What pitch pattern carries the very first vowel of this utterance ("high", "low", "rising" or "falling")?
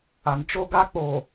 low